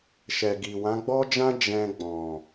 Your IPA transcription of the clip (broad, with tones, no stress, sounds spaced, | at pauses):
ʃ ɛ˨ ɡ i˨ w ã˨˦ ɡ͡b ɔ˦ d͡ʒ ã˦ d͡ʒ ɛ̃˧ ɡ͡b ɔ̃˨